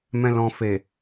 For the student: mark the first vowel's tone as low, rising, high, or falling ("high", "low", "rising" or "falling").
low